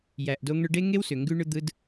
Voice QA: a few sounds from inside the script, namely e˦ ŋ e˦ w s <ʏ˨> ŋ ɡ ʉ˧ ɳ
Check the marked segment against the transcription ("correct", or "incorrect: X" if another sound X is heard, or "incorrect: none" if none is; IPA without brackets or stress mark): correct